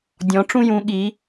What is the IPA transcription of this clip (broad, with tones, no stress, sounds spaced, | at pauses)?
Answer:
dʲ ɔ̃˩˧ ʈ͡ʂ ũ˧ j ũ˩˧ ɠ i˩˧